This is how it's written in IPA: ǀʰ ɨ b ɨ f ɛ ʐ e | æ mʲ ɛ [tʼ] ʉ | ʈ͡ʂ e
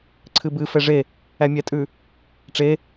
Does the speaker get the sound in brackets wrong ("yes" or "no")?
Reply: no